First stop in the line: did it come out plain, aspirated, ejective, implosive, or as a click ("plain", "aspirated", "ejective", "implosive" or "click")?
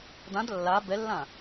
plain